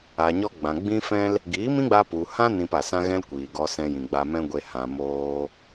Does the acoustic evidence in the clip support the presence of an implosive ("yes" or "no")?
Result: no